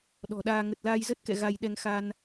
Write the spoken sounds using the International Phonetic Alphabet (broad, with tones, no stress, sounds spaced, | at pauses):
ɗ ɔ̤˨˩ ɗ aː˧ ŋ ə˨˩ t̚ l aː˧ j z ə˦˥ t̚ k ɛ̰˧˨ ɣ a˧ j ɗ ɛ˧ ŋ x a˧ n